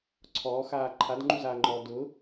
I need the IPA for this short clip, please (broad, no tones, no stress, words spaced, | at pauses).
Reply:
ǀʰɔːxaː ǃʰadŋ͡ǃuzaːŋ͡ǃɔː dʊ